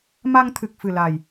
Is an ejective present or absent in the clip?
absent